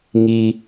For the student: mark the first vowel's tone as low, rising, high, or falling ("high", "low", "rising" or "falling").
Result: high